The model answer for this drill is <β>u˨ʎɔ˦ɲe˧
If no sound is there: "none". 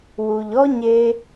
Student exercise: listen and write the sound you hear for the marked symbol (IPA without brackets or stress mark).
w